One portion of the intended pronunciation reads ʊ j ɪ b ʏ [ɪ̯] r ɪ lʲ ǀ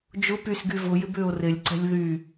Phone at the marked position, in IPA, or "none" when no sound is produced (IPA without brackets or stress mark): ʊ̯